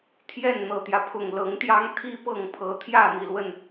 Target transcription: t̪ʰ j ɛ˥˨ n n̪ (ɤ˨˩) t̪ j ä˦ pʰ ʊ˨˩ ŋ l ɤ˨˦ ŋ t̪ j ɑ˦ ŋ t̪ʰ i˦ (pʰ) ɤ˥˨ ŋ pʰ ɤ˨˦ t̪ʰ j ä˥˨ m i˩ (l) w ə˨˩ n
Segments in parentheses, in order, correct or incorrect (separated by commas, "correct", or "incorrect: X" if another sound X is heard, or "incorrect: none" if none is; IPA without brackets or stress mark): correct, incorrect: p, correct